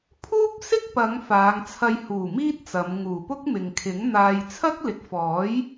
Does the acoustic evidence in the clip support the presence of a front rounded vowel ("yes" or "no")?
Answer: no